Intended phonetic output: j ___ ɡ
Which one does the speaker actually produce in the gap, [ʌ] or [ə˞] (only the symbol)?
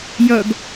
ʌ